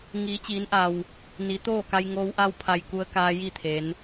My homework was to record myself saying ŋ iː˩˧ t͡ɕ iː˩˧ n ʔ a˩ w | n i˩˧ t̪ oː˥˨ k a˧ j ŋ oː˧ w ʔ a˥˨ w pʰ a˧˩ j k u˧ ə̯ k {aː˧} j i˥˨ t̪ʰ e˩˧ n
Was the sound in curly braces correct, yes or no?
yes